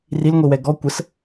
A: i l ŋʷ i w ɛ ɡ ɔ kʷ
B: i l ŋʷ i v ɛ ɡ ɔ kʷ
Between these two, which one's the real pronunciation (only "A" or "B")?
A